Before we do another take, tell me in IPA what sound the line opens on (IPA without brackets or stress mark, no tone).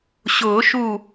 ɕ